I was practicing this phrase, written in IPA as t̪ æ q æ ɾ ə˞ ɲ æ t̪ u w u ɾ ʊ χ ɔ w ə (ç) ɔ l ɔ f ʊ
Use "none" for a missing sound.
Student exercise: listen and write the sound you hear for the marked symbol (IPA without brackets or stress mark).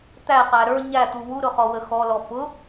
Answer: x